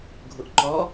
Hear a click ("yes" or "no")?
yes